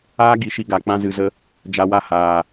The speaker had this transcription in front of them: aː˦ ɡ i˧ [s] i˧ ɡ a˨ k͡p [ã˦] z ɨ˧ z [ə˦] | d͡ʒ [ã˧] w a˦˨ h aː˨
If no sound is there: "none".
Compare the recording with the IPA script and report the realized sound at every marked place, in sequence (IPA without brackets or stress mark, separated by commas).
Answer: ʃ, ã˦, ə˦, a˧